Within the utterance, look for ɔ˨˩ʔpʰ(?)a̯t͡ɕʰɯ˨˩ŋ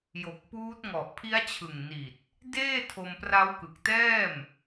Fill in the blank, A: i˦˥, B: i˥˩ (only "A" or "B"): A